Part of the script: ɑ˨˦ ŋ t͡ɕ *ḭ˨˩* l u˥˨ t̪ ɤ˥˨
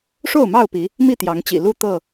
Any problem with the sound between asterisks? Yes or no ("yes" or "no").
no